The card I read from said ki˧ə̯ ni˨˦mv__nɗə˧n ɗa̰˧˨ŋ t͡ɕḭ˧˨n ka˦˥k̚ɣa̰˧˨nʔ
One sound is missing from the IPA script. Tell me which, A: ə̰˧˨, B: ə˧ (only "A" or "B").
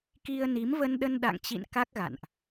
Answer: B